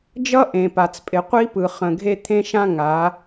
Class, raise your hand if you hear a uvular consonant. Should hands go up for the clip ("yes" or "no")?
yes